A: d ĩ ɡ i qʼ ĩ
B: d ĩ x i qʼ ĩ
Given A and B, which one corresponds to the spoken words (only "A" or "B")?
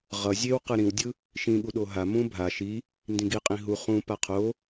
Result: A